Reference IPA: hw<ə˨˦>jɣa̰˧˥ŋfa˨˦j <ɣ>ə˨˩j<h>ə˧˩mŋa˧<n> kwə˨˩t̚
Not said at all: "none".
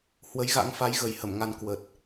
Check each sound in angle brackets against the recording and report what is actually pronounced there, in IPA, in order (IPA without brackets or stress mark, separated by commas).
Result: ə˨˦, ɣ, h, n